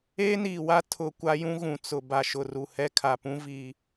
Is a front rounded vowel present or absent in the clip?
absent